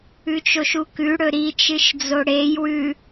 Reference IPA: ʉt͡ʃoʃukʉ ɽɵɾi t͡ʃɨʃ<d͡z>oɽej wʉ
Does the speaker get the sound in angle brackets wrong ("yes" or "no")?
no